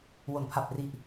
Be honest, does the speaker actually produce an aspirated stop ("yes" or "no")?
yes